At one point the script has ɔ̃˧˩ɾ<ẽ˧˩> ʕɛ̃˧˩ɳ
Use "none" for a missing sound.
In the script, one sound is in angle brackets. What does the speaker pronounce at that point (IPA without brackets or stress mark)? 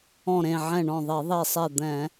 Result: ẽ˧˩